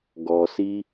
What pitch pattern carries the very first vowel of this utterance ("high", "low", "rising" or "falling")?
low